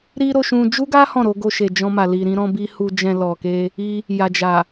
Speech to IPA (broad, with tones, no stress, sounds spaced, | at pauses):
ɾ i˦ ɾ o˧ ʃ ũ˧ d͡ʒ u˦ ɡ a˦ h ɔ̃˦˨ ɾ o˧ ɡ o˧ ʃ e˨ d͡ʒ ɔ̃˧ m a˨ l i˨ ɾ ĩ˧ ɾ ɔ̃˧ b i˧ h u˨ d͡ʒ ɛ̃˨ l ɔ˨ k e˧ | i˧ | j a˨ d͡ʒ a˨